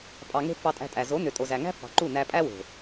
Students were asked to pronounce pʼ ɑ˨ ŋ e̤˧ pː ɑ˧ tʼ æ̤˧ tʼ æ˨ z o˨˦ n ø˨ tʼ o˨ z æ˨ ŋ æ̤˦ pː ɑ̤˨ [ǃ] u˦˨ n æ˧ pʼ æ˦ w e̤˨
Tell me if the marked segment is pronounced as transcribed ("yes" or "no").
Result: yes